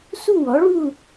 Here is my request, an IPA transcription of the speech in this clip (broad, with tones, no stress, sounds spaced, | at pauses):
s u˥˧ w ɔ˨˥ ɭ u˥˧